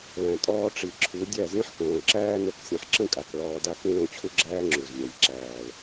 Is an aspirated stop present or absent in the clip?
present